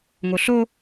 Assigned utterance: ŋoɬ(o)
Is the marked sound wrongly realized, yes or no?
no